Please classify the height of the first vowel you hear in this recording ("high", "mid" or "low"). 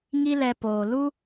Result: high